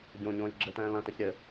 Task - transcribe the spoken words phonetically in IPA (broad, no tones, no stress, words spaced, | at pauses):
ɟõɲõːj ɡ͡ǁɘtɛ̃ː lɐ̃tɘç ɾʲɘ